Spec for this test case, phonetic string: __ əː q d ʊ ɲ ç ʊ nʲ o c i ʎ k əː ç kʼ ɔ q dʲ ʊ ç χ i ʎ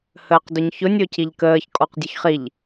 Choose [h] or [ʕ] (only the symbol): h